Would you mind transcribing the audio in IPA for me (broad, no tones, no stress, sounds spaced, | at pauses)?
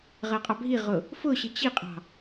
ʁ ɜ qʼ ɑ bʱ i ʁ ʊ | f ʊ ɕ ɪ t͡ɕ i qʼ ɑ̤